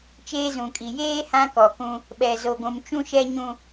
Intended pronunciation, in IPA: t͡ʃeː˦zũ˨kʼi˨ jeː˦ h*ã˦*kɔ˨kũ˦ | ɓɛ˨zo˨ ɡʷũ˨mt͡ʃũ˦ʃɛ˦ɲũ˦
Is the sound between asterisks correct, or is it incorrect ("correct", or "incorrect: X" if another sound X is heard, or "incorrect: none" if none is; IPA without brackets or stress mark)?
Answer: correct